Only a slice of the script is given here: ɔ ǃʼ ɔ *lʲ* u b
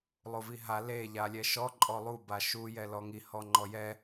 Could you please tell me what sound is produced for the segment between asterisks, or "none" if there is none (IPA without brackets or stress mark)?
lˠ